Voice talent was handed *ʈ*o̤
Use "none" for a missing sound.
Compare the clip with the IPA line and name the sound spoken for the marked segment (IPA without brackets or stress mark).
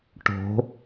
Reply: ʈ